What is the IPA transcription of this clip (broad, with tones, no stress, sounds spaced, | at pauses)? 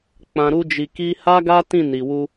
k͡p ã˧ ɾ u˦ d͡ʒ i˧ k i˦ h a˦ ɡ a˦ t ĩ˦˨ n i˨ w u˧